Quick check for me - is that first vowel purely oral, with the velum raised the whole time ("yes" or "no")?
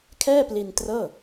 yes